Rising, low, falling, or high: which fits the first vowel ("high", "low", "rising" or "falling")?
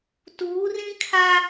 rising